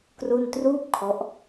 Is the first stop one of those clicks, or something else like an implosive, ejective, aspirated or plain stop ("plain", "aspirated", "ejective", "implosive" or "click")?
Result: plain